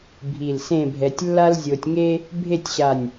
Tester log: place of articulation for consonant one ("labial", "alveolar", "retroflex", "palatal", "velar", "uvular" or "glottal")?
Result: labial